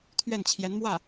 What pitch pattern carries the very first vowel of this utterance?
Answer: falling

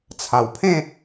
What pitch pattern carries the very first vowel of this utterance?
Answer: low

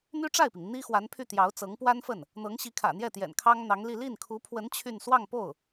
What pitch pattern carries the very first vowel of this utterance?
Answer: high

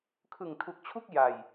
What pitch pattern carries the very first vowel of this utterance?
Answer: low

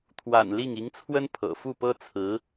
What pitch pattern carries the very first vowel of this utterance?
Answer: low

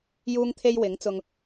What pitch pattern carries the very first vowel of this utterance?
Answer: high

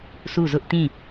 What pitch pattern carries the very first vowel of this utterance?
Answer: falling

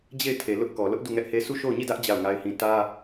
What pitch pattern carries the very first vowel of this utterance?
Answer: falling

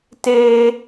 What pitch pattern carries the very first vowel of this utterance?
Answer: high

